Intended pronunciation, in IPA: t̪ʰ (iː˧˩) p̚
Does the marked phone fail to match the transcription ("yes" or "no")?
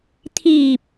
no